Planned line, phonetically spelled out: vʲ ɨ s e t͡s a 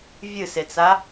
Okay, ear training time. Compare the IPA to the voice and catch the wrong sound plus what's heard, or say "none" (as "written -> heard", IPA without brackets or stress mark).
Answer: none